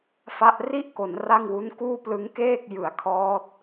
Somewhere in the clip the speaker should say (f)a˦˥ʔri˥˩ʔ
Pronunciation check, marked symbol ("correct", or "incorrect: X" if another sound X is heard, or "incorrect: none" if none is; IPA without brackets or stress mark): correct